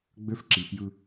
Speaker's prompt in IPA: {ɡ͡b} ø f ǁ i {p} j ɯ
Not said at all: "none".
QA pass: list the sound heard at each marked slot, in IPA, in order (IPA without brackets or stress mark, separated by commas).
ɡ͡b, p